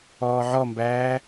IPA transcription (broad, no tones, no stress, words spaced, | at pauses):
ɔːʕɔmbæː